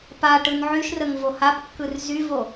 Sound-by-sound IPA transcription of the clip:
p a ʈ ɯ n ʕ y ʃ r ə ŋ v o h a p kː ɯ r z y v o

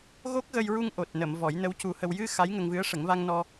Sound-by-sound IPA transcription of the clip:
ɣ o˦˥ k̚ ɣ ə˧ j ɹ u˧ ŋ ʔ o˨˩ t̚ n ə˨˩˨ m v ɔ˨˩˦ j n ə˧˥ w c u˧ h ə˧ w j ɨ˧ x a˧˥ j ŋ ə˧ ŋ v ɨ˧˥ ə̯ ʂ ə˨˩˦ ŋ v a˧ ŋ n ɔ˧

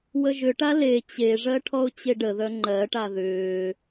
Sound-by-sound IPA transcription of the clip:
w ə ʒ ʏ ʈ a l e t͡ɕ e ʐ ɜ ʈʰ ɔ ʊ̯ t͡ɕ e ɖ ə ð œ ŋ͡ǃ ɜ ʈ a ð ʏː

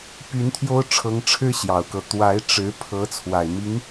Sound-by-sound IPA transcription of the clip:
p y˧˥ n t̪ʰ j o˥ ʊ̯ ʈ͡ʂʰ ɤ˧˥ ŋ ʈ͡ʂʰ ɻ̩˥ ɕ j ɑ˨˩ ʊ̯ k ɤ˦ t̪ w a˧˥ ɪ̯ ʈ͡ʂ ɻ̩˧˥ pʰ ɤ˧˥ t͡sʰ w a˨˩ ɪ̯ m i˧˥ ŋ

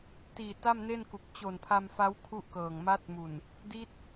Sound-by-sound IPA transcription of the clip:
t iː˨˩ t a˥˩ m n e˥˩ n k u˨˩ k̚ t͡ɕ o˨˩ n pʰ a˧ m f a˦˥ w kʰ u˥˩ ʔ k ɤː˨˩ ŋ m a˦˥ t̚ m u˨˩ n | d i˦˥ t̚

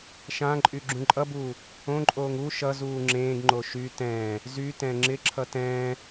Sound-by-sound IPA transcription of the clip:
ʃ ã ǃʼ y ɡ͡ǁ ũ ǃʼ ʌ b uː | õ ǃʼ oː ŋ u ʃ ʌ z uː ŋ͡ǁ ẽː ɡ ŋ͡ǃ o ʃ y t ɛ̃ː | z y t ɛ̃ ŋ͡ǁ ɪ ǁʰ ʌ t ɛ̃ː

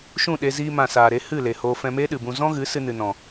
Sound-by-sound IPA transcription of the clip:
ʃ ũ˦˨ ɗ e˧ z iː˧ m ã˨ s aː˨ ɾ e˧ h ɨ˦˨ l e˨ h oː˧ f ɛ̃˧ m eː˦ ɗ ɨ˨ b ũ˧ z ɔ̃˦ ɣ ɨ˨˦ s ɨ˧ n ɨ˨ n ɔ̃˨

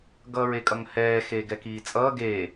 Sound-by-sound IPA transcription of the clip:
ɡ ʌː ɹ e kʼ ʌ ŋ h ɛː x eː ɡ ɛ k iː t͡sʼ ʌː ɡ eː

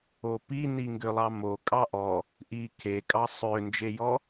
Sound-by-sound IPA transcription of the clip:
o p i n i ŋ ɡ ø lˠ ɑ m o kʼ ɑ ʔ ɔ | ʔ i kʰ e kʼ ɑ sˤ ø n d͡ʒ e j ɔ

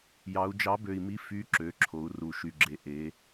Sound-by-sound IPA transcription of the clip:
j ɑ˩˧ u̯ d͡ʒ ɑ˨˥ b ø˨˩ i̯ m i˨˥ f y˨˥ ǁ ø˩˧ ǁʰ o˩˧ u̯ r u˨˩ ʃ y˨˩ ɡ͡ǁ e˨˥ ʔ e˩˧

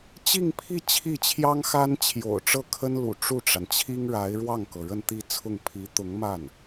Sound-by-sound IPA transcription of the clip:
t͡ɕ i˥˧ ŋ pʰ i˥˧ t͡ɕʰ i˥˩ t͡ɕʰ j ɑ˥ ŋ x a˥ n t͡ɕʰ j o̰˨˩ ʊ̯ ʈ͡ʂ ɤ˥˩ kʰ ə˥ n l ṵ˨˩ ʈ͡ʂ u˥˩ ʈ͡ʂ a˩ n t͡ɕʰ i˥ ŋ ɻ a˧˥ ɪ̯ ɻ w ɑ˥˩ ŋ k ɤ˩ ɻ ə˥˧ n t̪ i˥˧ t͡sʰ ʊ˥˩ ŋ pʰ i˧˥ t̪ ʊ˧˥ ŋ m a˥˩ n

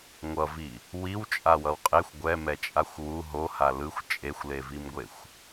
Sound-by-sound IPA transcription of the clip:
ŋʷ ʌ v i | w i w t͡ʃʼ a w ʌ w qʼ e xʷ ɡʷ ɛ m ɛ t͡ʃʼ a xʷ w u ɦ o h a l ɯ xʷ t͡ʃʼ e xʷ l e v i m ɡʷ e xʷ

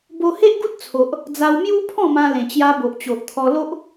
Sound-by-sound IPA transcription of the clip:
b o˧ h e˦ ʔ ɡ u˦ t̚ t͡sʰ o˨ ʔ | d͡z a˧ w m j u˦ pʰ ɔ̃˥˧ m ã˧ l ẽ˨˩ t͡ɕ j a˧ b o˨ ʔ t͡ɕ o˨ ʔ t̪ʰ ɔ˧ l o˦ ʔ

